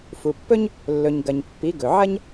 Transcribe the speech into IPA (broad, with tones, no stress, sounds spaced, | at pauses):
f u˩ pː ɵ˥ ɲ | lː ɵ˩ ɲ ɡ ɐ˩ ɲ pː i˩˥ ɡ ɵ˩ ʕ ɐ˥ ɲ